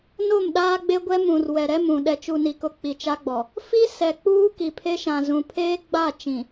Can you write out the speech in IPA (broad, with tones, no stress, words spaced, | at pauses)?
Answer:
no˦˨mɗaː˦ɡ͡be˦ɡʷɛ˦ mũ˨r wɛ˨ɾɛ˦mũ˨ ɗɛ˨t͡ʃu˨ni˨kʊ˨ k͡pi˨t͡ʃa˦ɡ͡bɔ˨ | fi˦sɛ˨k͡puː˦ ki˨pʰe˦ʃã˨zũ˨ pʰeː˦ɡ͡ba˦˨ t͡ʃĩ˨